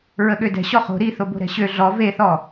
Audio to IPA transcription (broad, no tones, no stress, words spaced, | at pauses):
ɹəɠødɛ̤ ɕɔχo̤ ɾi θobo̤ɾɛ̤ɕø ɮɔ veθɔ